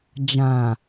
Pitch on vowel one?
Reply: low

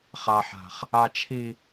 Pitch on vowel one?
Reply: low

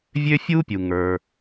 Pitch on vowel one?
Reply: high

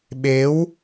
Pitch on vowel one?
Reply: rising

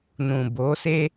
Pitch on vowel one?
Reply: low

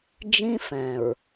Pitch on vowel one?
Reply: high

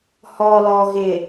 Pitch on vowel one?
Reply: low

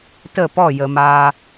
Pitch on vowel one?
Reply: falling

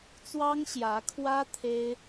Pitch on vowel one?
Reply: high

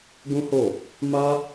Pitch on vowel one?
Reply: high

